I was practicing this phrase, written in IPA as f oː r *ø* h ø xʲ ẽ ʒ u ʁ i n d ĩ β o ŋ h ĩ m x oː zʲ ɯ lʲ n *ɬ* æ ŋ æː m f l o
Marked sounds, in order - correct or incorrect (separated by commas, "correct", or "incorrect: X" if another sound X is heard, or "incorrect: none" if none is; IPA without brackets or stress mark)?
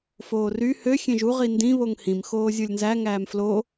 incorrect: y, incorrect: z